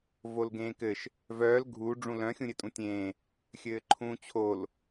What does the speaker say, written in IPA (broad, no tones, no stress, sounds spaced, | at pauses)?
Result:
v o l ɡ ẽː k ɘ ʃ | v œː l ɡʱ u ɖ͡ʐ ũ l œ̃ xʲ ũ ɾʲ ɘ tʼ ũ tʲ ẽː | xʲ ɘː ǃʰ ũː t͡ɕʰ o l